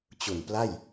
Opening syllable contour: low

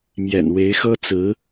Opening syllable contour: low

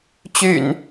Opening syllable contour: low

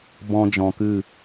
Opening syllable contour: high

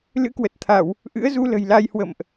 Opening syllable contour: rising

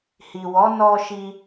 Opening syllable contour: low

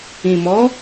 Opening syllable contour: low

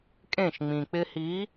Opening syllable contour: falling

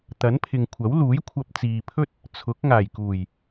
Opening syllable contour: rising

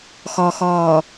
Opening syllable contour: low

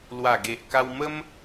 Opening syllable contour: low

